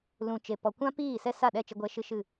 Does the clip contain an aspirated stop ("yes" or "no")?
no